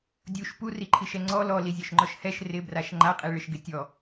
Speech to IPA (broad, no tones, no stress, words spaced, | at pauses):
dʲuʃ puriǃʰiʃɛ ŋ͡ǀɔ lɔlizʲɔʃŋ͡ǃɔʃ hɛʃ rɪbraʃ ŋ͡ǃaqʼiɭɪʃɡɪ tʲɔ